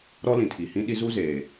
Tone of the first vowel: high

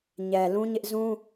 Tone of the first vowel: low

